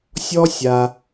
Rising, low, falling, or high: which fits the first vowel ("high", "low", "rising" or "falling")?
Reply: high